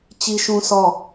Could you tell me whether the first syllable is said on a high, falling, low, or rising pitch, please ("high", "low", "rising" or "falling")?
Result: high